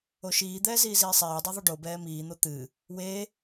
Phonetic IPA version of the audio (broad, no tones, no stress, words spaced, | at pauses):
oʃiːd̪ɛː ziːziːsˤɛːdˤu ðˤuɖobɛː miːn̪o t̪ɨ | we